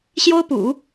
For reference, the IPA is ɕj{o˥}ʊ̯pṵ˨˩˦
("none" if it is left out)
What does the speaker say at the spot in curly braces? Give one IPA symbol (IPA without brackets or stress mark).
o˥